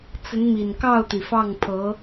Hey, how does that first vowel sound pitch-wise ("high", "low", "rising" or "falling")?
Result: rising